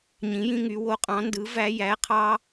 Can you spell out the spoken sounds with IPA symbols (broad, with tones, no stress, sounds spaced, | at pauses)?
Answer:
ɲ ĩ˨˥ j ĩ˦ ŋ y˨˥ w o˨˥ qʼ ɑ̃˨˥ n d ɯ˨˥ v æ˦ j æ˨˥ qʰ ɑ˦